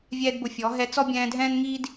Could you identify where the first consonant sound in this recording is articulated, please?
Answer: labial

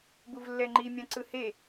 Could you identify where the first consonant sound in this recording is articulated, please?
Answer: labial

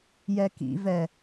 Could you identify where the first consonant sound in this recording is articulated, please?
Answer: palatal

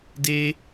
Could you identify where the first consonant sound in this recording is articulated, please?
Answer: alveolar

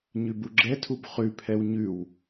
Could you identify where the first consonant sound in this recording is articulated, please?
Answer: palatal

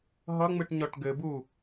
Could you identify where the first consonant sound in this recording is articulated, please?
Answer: glottal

